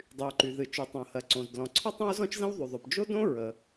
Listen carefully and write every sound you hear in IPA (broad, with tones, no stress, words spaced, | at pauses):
dˤy˩u̯ǃy˩ðɨ˩ t͡ʃy˩tˤõ˩hɜ˩ǀõ˩z dlɔ̃˩ ǀʰɔ˥tˤõ˥u̯zɔ̃˥t͡ʃzə̃˥w ðˤy˩ðˤo˩p d͡ʒo˥dõ˥ ɹə˩